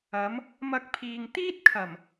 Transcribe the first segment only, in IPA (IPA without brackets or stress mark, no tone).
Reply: ɐ